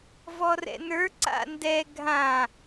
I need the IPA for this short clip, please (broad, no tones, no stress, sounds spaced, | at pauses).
v ɔ r ɛ̰ n ə˞ ǀ a̰ n d ɛ ɡʱ ã